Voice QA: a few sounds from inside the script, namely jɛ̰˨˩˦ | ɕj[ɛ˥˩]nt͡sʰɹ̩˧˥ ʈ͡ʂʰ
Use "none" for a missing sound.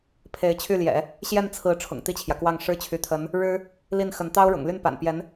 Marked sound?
ɛ˥˩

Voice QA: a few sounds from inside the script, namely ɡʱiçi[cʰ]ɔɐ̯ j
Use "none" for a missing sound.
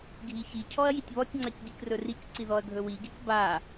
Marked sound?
cʰ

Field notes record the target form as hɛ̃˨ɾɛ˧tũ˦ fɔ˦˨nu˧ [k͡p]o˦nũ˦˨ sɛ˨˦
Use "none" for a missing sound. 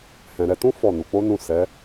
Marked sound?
k͡p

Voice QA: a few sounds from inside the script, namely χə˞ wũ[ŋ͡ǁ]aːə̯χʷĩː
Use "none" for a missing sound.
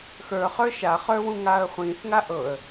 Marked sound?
ŋ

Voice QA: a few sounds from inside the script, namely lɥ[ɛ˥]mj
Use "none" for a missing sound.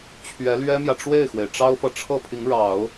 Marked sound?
ɛ˥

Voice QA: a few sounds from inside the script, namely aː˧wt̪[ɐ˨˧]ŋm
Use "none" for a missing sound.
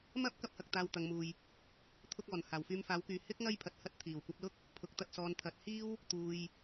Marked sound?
ɐ˨˧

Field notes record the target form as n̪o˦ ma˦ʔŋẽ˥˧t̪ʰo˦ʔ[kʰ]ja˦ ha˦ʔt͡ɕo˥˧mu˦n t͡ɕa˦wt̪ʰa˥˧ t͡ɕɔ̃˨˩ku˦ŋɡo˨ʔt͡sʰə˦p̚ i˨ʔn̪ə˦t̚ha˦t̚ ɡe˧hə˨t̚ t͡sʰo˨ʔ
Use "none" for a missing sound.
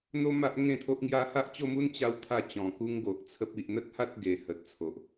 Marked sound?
ŋ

